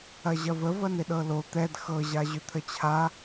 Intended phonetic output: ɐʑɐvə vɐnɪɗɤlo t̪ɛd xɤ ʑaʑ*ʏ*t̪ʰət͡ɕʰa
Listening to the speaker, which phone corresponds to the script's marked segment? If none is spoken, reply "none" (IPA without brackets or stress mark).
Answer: ʏ